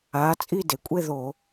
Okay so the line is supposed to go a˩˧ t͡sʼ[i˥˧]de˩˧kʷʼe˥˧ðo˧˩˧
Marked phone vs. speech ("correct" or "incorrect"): correct